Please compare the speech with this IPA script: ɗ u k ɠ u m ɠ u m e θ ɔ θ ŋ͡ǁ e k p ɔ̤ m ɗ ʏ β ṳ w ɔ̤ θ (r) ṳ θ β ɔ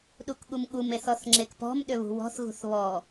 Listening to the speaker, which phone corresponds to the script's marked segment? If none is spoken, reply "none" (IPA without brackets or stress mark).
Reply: ɣ